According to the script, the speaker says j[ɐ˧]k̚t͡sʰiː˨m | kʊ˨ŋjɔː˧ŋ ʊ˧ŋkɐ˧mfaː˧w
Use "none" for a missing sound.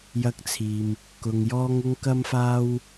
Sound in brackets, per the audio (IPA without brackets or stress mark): ɐ˧